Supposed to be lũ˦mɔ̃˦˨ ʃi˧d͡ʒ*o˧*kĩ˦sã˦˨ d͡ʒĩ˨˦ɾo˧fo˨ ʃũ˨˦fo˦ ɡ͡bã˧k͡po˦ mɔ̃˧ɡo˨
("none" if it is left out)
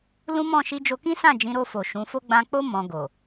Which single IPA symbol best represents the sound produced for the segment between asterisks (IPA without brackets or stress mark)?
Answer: o˧